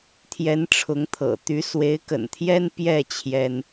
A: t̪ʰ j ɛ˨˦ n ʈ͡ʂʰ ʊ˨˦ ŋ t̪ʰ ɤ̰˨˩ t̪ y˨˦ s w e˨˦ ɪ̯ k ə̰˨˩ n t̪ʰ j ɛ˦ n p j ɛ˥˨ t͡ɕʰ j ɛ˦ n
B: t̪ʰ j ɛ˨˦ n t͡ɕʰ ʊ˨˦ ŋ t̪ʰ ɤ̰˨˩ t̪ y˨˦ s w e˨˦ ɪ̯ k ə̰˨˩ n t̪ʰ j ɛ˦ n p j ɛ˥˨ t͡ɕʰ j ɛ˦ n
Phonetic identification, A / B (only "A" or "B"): A